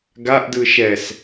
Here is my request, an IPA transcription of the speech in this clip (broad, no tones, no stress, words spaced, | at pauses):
ɡaʔdɯ ʃɛs